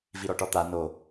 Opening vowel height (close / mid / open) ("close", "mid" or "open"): close